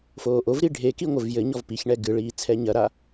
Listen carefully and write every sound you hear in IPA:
f oː ʔ o v ɾ i ɖʱ e k i ŋʷ ɘ v j ɘ ɲ ɔ v p i ç ɳ ɛ ɡ ɨ ɭ iː t͡sʰ ɛ ɲ ɐ ɾ a

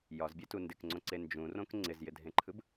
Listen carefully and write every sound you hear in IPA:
j ɒ z bʲ e t u n d ɪ k ŋ͡ǀ õ ǀ e n d͡ʒ ũ r õ k ŋ͡ǀ ɪ z j ɪ dʱ ẽ ǃʰ ɯ b

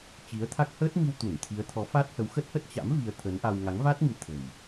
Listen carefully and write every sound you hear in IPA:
t͡ɕ i˨˦ ə̯ t̪ʰ a˦˥ k̚ h əː˦˥ t̚ m i˧ w t̪ u˧˩ n t̪ʰ i˨˦ ə̯ t̪ʰ ɔ˨˦ f a˦˥ t̚ h ə˨˦ w x ə˦˥ t̚ h ə˦˥ t̚ t͡ɕ a̰˧˥ m v i˧ ə̯ t̪ʰ ə˨˦ n ʔ a˧ w ŋ a˨˦ ŋ v a˦˥ t̚ ŋ ɨ˨˦ t̪ʰ ə̤˨˩ j

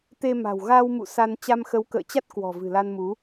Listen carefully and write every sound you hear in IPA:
t̪ e˧ m a̤˨˩ w ɣ a˧ w m ṵ˧˨ s a˧ n t͡ɕ a˧ m x ə˨˦ w k ə̰ː˧˨ t͡ɕ a˦˥ t̚ k w ɔ̤˨˩ v ɨ̤˨˩ l a˧ n m u˨˦

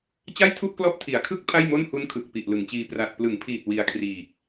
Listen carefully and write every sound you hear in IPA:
t͡ɕ a˥˩ j tʰ u˥˩ ʔ k l ɔ˦˥ ʔ tʰ i˩˦ a̯ kʰ ɯ˦˥ k̚ pʰ a˥˩ j m o˥˩ n h u˦˥ n kʰ ɯ˨˩ k̚ p i˨˩ ʔ l ɯ˩˦ ŋ t͡ɕ iː˧ p r a˨˩ t̚ p l ɯ˩˦ ŋ pʰ iː˨˩ t̚ w i˧ a̯ kʰ r iː˨˩ k̚

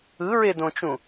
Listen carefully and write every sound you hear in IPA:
ɯ ɹ e d õ t͡ʃ ũ

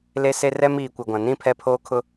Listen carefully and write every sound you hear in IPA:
l e˦ s e˦ r ɛ˦ m iː˨ kʷ ɪ˨ ɡʷ ã˨ n ĩ˦ pʰ ɛ˦ pʰ oː˦ kʰ ʊ˦

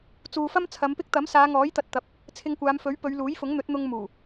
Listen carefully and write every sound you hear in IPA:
t͡s uː˨ f ɐ˥ m t͡sʰ ɐ˨˧ m p ɪ˥ k̚ t̪ ɐ˨˥ m s aː˨˧ ŋ ɔː˨˥ j t̪ ɐ˨ t̚ t̪ ɐ˨˥ p̚ | t͡sʰ ɪ˧ ŋ kʷ aː˨˧ m f ɵ˨˥ ɥ p ɵ˨˧ ɥ l uː˨˥ j f ʊ˨˥ ŋ n̪ ɵ˨˥ t̚ n̪ ʊ˧ ŋ m uː˨˩

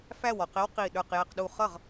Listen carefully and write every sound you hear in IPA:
f æ˥˩ w ɔ˥˩ q ɪ˦˥ w q i˧˩ ɗ ə˞˧˩ q j ɛ˧˩ q ɗ u˧˩ χ ʌ˥˩ ʁ

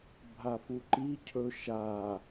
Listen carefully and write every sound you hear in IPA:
bʱ a f u ǃ i cʰ ɵ ʃ a

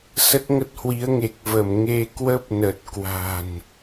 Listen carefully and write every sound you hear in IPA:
s ə˦˥ t̚ ŋ ə˦˥ t̚ h w i˨˦ ə̯ ŋ e˨˩ k̚ v ə˧˩ m ŋ e˧ k w ə˦˥ p̚ n ə˨˩ t̚ k w a̤˨˩ n

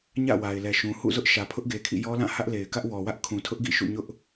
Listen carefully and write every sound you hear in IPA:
ɲ ä̰˦˨ w a˨ ɪ̯ l ɛ˨ ʃ ũ˨ h ṵ˦˨ z ʊ˦ ʔ ʃ ä˨ pʰ ʊ˦ ʔ ɡ e˨ kʰ ḭ˦˨ j ɔ˦ l ã˦˨ h ä˦ ʔ l e˨ ɪ̯ k ä˦ ʔ w ɔ˨ w ä˦ ʔ kʰ ũ˨ tʰ ʊ˦ ʔ ɡ ḭ˦˨ ʃ ṵ˦˨ ɲ ʊ˦ ʔ

